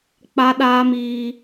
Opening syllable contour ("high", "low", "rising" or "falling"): high